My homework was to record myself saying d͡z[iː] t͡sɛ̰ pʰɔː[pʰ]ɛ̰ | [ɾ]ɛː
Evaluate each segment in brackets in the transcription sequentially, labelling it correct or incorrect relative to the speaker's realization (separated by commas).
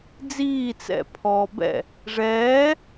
correct, incorrect, incorrect